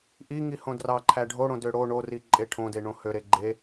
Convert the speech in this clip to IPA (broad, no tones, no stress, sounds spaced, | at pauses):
ʔ i ŋ i h õ d r ɑ ǃʰ æ ɖʱ o ɽ õ d ø ɽ o ɳ o r i ǃʼ e ʈʰ õ d e ɳ õ h ø ɾ e ɡ͡ǃ e